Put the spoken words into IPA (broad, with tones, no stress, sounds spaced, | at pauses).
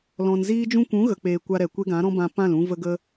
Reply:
l ɔ̃˨ n z iː˦ d͡ʒ ũ˦ kʷ ũ˨˦ ɣ ə˨ k͡p eː˨ kʷ a˧ ɾ ɛ˨ kʷ e˦ ɡ ã˨˦ ɾ ɔ̃˦ b ã˧ p ã˦˨ l ũ˧ v ə˧ ɡ ə˧